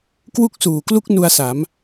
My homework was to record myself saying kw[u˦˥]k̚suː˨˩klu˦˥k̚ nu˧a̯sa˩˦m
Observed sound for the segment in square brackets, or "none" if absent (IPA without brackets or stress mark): u˦˥